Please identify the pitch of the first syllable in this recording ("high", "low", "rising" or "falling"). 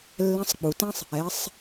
rising